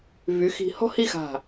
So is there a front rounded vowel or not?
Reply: yes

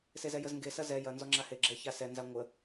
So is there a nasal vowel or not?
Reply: no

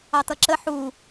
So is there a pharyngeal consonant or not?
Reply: yes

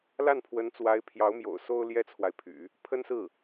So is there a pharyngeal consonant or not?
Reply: no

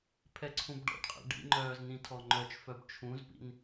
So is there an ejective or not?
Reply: yes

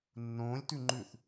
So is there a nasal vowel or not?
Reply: yes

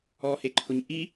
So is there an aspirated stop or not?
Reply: yes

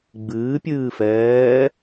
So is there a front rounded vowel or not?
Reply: no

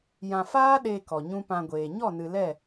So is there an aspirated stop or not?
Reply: no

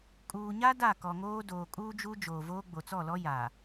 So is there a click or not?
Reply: no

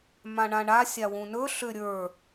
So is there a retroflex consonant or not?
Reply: yes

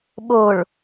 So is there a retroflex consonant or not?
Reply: yes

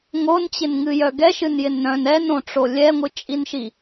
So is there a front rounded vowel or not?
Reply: yes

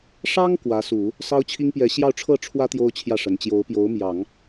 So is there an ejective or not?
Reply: no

